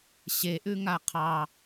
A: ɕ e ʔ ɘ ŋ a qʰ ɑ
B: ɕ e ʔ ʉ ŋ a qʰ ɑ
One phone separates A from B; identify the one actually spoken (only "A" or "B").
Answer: B